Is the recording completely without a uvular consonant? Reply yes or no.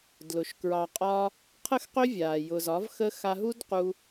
no